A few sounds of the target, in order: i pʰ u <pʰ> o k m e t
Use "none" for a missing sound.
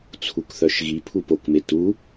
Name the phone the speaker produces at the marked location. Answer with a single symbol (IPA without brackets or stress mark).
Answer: p